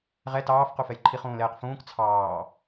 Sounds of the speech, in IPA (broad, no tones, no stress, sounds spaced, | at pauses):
ʁ ɛ t ɑː f q u f ɛ j ǃʰ i χ ũː l ɛː q f ũː k t͡sʰ ɑː